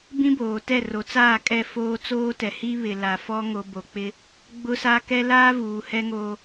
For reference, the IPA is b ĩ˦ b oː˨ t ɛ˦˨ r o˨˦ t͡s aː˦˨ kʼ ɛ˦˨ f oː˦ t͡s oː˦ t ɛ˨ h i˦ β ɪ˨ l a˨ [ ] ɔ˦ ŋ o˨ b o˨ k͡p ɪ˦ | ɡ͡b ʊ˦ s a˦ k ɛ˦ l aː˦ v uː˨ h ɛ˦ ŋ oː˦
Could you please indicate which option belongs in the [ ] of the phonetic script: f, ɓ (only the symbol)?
f